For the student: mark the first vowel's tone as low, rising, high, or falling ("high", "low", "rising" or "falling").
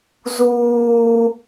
low